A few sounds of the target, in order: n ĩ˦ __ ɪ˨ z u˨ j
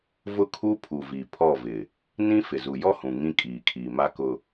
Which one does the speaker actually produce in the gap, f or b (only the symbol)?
f